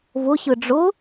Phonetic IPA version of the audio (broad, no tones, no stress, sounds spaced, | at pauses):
v ʊ ɕ ɯ ɖ͡ʐ ʊ